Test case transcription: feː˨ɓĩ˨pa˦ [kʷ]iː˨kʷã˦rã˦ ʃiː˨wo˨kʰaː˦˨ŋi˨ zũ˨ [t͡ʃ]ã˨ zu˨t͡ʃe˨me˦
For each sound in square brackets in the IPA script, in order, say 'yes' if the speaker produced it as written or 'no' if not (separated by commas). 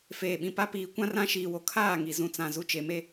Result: no, no